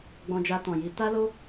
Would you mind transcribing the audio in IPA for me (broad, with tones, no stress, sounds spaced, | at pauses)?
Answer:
ɡ͡b ɔ̃˧ d͡ʒ a˧ t ɔ̃˨ j i˨˦ t a˦ l o˦